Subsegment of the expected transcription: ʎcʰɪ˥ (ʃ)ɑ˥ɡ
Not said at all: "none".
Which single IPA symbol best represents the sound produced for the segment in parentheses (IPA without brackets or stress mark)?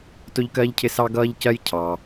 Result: s